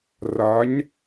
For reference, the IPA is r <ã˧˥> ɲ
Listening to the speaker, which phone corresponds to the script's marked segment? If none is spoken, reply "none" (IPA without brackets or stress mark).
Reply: a˧˥